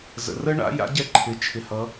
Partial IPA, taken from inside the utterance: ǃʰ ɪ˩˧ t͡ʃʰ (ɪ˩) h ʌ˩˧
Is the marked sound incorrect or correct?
correct